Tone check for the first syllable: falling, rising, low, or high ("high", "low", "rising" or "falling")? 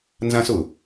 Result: high